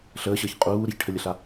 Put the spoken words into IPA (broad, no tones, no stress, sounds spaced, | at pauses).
ɬ əː ɕ əː ç qʼ uː ɾ ɪ ç ʈʰ ə lʲ ə ɬ a